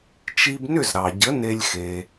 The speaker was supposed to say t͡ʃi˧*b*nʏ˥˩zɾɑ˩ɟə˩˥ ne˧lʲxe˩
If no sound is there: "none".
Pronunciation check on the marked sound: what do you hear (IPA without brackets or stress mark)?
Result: b